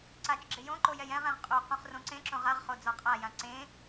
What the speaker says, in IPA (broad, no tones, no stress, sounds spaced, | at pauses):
ǀ a t͡ʃ ɡ͡ǁ ɪ j õ ǃ o j ɛ j ɛ̃ ʁ ɛ̃ ʁ qʼ o q ũ χ r õ ǀ ẽ ǁ õ ʁ a ʁ χ o d͡z ɔ qʼ a j ã ǀ ẽ